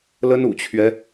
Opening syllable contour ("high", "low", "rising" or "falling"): high